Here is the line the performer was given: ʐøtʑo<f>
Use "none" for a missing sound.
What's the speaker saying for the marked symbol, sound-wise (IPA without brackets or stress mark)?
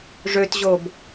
b